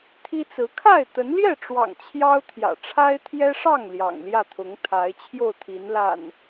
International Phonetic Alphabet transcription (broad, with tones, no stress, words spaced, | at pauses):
t̪ʰi˦t͡sɹ̩˨˦ kʰa˥˨ɪ̯t̪ə˨˦nljɛ˥˨ʈ͡ʂwɑ̰˨˩ŋ t͡ɕʰjɑ˦ʊ̯t̪ʰjä̰˨˩ ʈ͡ʂʰa˦ɪ̯t̪ʰjɛ˦ʂɑ˥˨ŋ ljɑ̰˨˩ŋljä˥˨t̪ʰʊ˨˦ŋ t̪ʰa˨˦ɪ̯t͡ɕʰjo˥˨ʊ̯ t̪ʰi˨˦nla̰˨˩n